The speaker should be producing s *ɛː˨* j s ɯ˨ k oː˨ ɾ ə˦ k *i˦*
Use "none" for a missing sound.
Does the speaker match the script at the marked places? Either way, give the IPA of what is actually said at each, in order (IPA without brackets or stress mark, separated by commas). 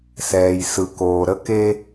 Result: ɛː˨, e˦